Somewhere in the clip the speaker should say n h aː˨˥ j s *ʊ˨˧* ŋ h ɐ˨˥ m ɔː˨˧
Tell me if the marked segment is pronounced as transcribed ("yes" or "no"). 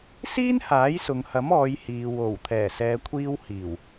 no